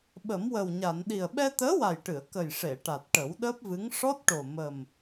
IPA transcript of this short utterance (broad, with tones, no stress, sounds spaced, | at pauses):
ɓ ə˨˩˦ m w ə˨˩ w ɲ a˨˩˨ n ɗ i˨˩ ə̯ ɓ ɛ˧ t̪ əː˧˥ w a˨˩ j ʈ ɨ˨˩˨ ə̯ k ə˨˩ j ʂ e˨˩˨ ʈ a˨˩ t̚ ʈ ə˨˩˦ w ɗ əː˦˥ p̚ v ɨ˧˥ ŋ ʂ ɔ˦˥ t̚ ʈ o˨˩ m ə˨˩ m